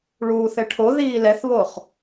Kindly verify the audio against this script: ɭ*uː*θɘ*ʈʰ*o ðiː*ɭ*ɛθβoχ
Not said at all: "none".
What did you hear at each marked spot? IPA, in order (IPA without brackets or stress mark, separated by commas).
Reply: uː, ʈʰ, l